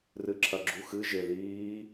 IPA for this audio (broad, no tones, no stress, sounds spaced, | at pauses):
r ɨ ǁʰ ɐ ɡ͡ǁ u x ɨ ʒ e ð iː